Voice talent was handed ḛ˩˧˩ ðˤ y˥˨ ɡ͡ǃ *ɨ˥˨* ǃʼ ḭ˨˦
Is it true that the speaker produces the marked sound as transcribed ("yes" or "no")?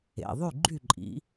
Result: no